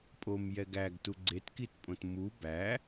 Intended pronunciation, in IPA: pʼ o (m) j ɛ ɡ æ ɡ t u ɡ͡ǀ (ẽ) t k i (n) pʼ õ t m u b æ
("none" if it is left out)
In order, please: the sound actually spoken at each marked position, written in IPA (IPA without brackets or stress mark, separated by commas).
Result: m, e, t